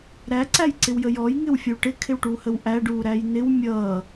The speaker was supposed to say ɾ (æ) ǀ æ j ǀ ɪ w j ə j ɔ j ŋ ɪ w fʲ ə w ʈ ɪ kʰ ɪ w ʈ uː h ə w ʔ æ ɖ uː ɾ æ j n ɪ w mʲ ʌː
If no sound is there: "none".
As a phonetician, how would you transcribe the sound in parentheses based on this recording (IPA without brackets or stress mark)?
æ